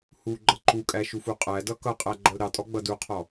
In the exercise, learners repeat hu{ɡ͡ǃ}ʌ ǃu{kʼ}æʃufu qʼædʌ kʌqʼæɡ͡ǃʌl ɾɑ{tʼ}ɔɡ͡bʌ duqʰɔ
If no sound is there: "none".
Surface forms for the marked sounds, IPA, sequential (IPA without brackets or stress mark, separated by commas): ɡ͡ǃ, kʼ, tʼ